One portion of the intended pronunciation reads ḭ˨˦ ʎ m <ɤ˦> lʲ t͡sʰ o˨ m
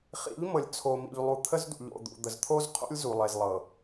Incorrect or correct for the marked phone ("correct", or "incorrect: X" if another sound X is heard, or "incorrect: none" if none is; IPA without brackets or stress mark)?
incorrect: ɤ˨